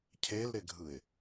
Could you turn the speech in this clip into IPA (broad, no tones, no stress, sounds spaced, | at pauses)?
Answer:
cʰ e l ɾ ɪ ɡʱ ɯ ɪ̯